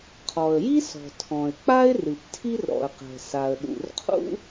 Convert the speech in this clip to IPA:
qʰ ɔ˩ ə̯ j i˥ s ɔ̤˩ tʰ ɔ̃˩ ɪ̯ k͡p a˥ ɪ̯ r ɨ˩ p tʰ i˥ r ɾ ɔ̰˩ ə̯ q ɛ̤˩ s a˩ ə̯ ɗ ṵ˩ r qʰ ṵ˥

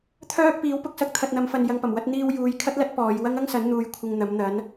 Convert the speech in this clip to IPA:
t̪ʰ œː˥ k̚ p iː˨˥ w p ʊ˥ k̚ s ɐ˨ k̚ t̪ʰ ɐ˨ t̚ n̪ ɐ˨˧ m f ɐ˨ n j ɐ˧ ŋ p ɐ˨˩ m w ɐ˥ t̚ n̪ iː˧ w j uː˨˧ j kʰ ɐ˥ t̚ l ɐ˥ t̚ p ɔː˨˧ j w ɐ˥ ŋ ɐ˥ ŋ s ɐ˨˥ n n̪ uː˨˧ j kʷʰ ɪ˧ ŋ n̪ ɐ˨˥ m n̪ ɐ˨˥ n

